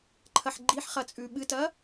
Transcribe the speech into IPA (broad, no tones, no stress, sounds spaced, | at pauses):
ǃʰ ɐ ħ ɡ͡ǃ i ħ χ ɐ t͡sʼ ʉ ɓ ɨ t ɐ